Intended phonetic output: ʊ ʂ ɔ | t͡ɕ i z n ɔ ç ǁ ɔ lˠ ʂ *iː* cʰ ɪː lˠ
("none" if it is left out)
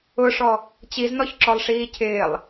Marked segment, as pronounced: iː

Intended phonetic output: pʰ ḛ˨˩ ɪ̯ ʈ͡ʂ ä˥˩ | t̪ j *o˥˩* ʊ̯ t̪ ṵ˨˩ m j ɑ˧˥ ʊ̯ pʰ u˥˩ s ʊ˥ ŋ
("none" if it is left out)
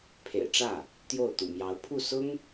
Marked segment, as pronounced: o˥˩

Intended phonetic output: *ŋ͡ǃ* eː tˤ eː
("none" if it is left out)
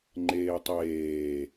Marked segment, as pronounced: ŋ͡ǃ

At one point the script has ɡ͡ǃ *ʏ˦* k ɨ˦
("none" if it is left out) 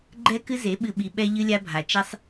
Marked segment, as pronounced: ɛ˦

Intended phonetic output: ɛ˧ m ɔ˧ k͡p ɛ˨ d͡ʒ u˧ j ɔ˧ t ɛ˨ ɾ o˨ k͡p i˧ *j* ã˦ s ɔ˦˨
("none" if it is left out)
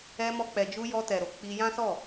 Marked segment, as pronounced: j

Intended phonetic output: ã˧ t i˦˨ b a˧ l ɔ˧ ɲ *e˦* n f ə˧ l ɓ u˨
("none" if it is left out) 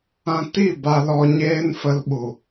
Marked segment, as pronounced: eː˦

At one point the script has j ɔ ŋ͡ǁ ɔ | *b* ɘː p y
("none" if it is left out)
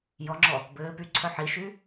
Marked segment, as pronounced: b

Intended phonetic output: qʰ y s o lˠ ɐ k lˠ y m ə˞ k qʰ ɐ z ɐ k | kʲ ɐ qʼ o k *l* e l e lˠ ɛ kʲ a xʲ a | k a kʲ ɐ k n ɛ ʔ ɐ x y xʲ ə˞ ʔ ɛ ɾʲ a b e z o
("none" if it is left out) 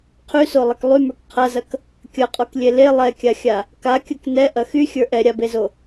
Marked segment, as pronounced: lʲ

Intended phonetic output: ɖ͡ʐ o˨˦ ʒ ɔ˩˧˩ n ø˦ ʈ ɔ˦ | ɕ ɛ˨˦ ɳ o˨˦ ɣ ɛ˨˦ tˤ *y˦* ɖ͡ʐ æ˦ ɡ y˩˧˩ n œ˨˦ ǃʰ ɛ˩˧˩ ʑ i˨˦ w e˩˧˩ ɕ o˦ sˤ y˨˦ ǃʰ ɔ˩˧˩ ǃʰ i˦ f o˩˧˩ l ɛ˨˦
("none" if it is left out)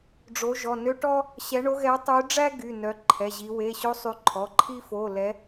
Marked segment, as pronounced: y˨˦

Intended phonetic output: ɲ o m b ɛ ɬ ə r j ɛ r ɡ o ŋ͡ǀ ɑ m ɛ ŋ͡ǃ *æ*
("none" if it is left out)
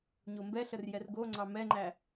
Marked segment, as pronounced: æ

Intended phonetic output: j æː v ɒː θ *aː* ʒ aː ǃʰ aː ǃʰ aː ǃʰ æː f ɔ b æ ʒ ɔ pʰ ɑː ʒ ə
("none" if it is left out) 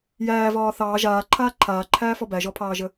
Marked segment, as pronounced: ɑː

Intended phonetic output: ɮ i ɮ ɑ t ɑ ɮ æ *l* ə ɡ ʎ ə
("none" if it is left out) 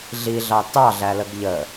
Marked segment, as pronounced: l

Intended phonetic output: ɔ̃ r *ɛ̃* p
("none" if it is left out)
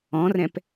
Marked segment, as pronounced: ɛ̃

